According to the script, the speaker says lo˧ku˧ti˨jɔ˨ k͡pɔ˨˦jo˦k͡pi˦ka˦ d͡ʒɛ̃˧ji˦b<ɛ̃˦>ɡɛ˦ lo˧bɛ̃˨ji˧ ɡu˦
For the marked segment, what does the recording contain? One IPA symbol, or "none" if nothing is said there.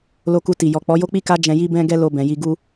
ɛ̃˦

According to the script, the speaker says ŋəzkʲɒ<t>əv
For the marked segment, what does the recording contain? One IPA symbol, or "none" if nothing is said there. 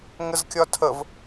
tʰ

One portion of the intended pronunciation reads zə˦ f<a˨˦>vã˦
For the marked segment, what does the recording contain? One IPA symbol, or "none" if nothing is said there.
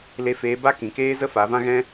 a˨˦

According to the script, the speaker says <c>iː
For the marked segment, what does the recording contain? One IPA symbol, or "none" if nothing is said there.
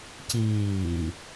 c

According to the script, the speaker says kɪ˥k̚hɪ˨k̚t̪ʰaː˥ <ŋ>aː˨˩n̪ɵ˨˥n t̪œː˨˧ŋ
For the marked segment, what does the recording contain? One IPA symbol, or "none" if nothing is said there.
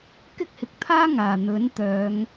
ŋ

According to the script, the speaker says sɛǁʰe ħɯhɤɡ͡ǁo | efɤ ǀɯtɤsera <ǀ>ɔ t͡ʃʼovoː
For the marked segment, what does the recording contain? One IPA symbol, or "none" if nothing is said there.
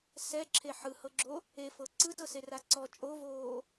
ǀ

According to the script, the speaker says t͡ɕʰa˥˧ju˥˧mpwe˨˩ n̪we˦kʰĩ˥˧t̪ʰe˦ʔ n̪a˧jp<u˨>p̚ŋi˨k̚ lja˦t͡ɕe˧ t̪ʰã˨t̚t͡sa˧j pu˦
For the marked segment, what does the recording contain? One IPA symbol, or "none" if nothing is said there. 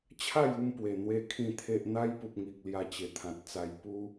u˨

